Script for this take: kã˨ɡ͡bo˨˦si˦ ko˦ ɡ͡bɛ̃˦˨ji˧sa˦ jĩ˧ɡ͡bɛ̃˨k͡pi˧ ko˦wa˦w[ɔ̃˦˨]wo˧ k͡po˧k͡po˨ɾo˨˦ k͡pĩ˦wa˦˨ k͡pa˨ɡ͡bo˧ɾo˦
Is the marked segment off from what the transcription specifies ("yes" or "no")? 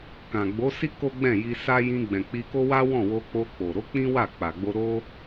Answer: no